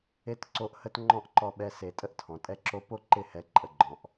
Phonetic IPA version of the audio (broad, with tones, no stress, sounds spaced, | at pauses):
e˦ t ǀ o˦ ʔ h ə˦ t ŋ͡ǃ ɔ̃˦ ʔ ǃ ɔ˧ ɓ ɛ˧ s e˨ tʼ ə˦ ʔ tʰ ɔ̃˨ tʼ ɛ˧ ǁ o˧ p o˦ ǃ ɪ˦˨ h ɛ˨˦ ǃʼ ə˧ ɡ͡ǃ ɔ̃˨ ʔ